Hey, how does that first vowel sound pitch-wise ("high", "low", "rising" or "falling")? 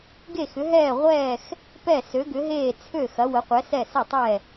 falling